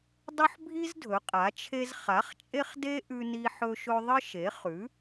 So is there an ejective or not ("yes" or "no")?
yes